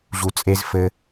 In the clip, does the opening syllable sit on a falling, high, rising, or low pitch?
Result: low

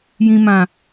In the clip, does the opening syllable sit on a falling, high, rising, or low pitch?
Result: low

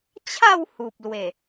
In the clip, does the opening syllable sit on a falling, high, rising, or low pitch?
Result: falling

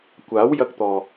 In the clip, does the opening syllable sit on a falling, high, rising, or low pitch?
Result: rising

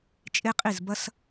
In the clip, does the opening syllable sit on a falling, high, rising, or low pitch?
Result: high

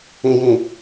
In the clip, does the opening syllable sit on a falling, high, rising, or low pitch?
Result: low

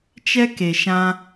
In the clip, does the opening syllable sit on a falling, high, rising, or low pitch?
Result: high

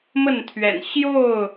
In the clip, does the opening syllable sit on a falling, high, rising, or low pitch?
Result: falling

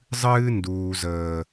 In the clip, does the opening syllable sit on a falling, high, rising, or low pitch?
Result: high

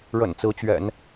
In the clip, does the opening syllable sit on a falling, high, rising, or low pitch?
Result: low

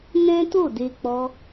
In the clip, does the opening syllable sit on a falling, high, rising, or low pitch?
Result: high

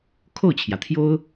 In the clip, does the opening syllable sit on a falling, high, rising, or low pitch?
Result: falling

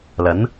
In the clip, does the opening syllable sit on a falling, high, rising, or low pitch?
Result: rising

